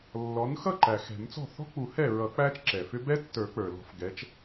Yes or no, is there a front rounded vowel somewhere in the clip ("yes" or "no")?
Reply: yes